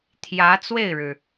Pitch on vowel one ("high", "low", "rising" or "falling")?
rising